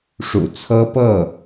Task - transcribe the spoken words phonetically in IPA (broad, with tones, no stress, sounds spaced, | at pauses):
ʂ ṵ˨˩ t͡sʰ ɤ˥ p ɤ˥˩